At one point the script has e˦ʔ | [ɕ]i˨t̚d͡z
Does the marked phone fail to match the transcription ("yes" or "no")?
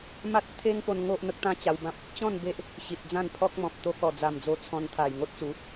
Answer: no